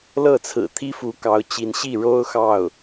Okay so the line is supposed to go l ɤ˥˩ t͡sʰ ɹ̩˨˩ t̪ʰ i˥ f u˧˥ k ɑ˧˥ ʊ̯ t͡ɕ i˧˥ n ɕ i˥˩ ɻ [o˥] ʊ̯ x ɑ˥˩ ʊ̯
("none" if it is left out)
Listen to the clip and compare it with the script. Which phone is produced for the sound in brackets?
o˥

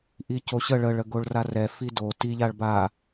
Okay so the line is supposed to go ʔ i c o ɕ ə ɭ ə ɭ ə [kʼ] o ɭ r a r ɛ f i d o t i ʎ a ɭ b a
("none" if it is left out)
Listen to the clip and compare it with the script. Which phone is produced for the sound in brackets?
ɡ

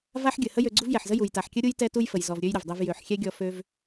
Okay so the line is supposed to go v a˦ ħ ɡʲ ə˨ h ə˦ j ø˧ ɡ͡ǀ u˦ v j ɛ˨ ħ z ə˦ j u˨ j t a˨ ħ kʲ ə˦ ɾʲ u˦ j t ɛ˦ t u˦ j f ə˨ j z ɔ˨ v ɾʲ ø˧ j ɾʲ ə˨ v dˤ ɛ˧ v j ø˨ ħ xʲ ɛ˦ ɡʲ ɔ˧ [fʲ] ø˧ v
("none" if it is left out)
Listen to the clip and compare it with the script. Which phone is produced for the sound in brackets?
f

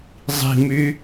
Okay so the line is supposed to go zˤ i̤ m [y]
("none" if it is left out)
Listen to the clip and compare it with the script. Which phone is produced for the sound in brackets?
y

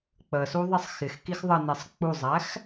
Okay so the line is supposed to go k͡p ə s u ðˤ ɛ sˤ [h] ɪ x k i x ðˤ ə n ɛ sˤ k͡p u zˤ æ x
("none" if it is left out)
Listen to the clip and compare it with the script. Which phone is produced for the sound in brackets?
x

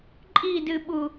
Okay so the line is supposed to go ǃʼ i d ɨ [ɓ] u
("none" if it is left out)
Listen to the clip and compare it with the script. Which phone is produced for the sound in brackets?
ɓ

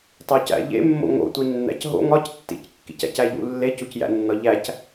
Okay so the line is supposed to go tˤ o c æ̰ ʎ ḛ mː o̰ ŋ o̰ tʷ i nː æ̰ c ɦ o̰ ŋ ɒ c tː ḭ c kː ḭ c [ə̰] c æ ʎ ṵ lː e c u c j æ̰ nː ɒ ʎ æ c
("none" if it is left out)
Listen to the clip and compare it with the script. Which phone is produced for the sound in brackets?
æ̰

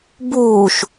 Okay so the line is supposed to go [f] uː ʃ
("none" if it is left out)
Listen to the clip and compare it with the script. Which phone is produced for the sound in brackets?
b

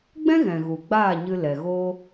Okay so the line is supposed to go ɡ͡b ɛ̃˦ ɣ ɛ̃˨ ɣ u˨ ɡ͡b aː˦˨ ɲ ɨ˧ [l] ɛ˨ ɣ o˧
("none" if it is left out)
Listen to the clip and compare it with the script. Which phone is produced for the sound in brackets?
l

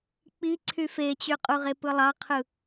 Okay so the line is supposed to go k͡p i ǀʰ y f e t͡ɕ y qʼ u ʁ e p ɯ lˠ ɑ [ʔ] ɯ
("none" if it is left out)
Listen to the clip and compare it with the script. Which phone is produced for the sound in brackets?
qʰ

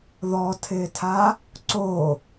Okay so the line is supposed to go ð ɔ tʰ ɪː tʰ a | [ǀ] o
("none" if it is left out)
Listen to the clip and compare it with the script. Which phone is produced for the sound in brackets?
ǀ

